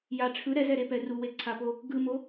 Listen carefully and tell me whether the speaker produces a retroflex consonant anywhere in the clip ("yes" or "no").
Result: yes